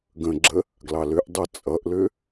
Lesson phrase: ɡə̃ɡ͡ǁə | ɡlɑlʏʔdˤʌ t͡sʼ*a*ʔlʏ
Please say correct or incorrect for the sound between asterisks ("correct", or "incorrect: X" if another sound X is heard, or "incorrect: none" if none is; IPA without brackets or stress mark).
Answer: incorrect: ʌ